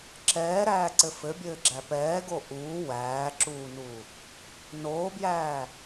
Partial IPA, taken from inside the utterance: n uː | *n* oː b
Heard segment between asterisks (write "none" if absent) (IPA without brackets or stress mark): n